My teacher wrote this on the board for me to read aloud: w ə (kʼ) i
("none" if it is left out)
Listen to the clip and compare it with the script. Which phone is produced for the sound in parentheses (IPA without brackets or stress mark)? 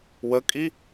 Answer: kʼ